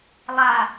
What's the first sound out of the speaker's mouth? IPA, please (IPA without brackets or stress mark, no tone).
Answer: lˠ